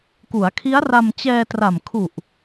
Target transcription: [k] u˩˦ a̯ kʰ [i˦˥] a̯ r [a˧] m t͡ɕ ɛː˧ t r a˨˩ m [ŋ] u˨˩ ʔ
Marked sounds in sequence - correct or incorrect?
correct, correct, correct, incorrect: kʰ

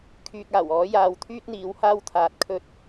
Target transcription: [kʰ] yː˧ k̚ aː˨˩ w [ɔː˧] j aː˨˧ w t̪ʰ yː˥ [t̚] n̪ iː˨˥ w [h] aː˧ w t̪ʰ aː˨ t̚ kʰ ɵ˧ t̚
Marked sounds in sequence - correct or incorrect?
correct, incorrect: ɔː˨˥, correct, correct

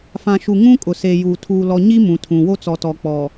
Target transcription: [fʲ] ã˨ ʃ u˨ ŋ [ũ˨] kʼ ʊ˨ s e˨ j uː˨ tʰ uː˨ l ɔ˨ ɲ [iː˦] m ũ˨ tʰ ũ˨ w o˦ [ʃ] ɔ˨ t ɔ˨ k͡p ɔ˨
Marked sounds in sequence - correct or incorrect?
incorrect: f, incorrect: ũ˦, incorrect: i˦, incorrect: t͡s

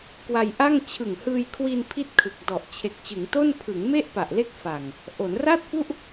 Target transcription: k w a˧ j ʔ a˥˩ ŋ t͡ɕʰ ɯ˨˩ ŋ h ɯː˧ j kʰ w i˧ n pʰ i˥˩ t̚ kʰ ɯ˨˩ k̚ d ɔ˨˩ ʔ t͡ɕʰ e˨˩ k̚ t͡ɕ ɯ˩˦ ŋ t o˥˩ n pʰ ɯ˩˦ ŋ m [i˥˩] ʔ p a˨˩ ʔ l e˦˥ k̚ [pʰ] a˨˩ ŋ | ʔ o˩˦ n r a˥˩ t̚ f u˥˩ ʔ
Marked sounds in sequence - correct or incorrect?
incorrect: e˥˩, incorrect: f

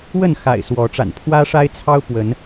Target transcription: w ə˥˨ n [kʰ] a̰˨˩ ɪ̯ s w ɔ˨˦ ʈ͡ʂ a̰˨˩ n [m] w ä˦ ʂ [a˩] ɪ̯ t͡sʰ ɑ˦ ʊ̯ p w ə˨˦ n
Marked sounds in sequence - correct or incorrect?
incorrect: x, incorrect: pʰ, incorrect: a˦

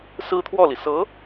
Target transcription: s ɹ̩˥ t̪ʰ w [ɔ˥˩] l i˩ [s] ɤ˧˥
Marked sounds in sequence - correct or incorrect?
correct, correct

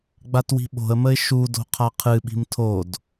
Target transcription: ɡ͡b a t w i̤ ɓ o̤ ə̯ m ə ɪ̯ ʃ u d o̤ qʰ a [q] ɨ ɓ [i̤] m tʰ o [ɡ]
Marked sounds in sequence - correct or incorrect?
incorrect: qʰ, correct, incorrect: d

